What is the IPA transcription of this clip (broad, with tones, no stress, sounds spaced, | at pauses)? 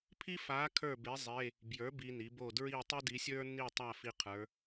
pʰ i˥ f a˧˥ kʰ ə˞˥˨ b e˧˥ zˤ e˧˥˧ | b j ə˞˩˥ b i˨ n i˩˥ b o˥˨ d ɹ i˥˨ tˤ i˥ d i˧˥ sʲ ə˞˥ n i˥˨ tˤ a˥˨ f i˥ qʰ ə˞˧˥